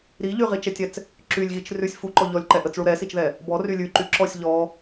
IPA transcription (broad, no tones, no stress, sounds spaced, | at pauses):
ɾ i ʎ y ʁ i t͡ʃ ɛ tʲ ɛ t͡s | ǁ y lʲ ɣ i t͡ʃ r ʉ sʲ f u ǃ ɔ ʎ ɔ lʲ ǃ ɛ ʔ ə t͡s ɭ u ɾ ɛ s i t͡ʃ ð ɛ | b ɔ r y lʲ ʉ ǃ y ǁ ɔ sʲ ʎ ɔ